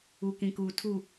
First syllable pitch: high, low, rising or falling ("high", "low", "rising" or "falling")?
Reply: low